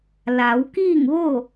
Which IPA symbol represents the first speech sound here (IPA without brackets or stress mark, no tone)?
l